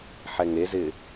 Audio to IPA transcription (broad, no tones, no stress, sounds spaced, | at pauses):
ħ ɛ ŋ e z ɪ